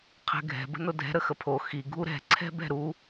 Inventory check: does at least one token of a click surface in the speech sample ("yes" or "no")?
yes